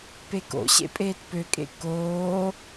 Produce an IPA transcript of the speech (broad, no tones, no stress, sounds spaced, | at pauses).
p e k o̰ ɕ ḛ pʼ eː t p ø kʼ ḛ k oː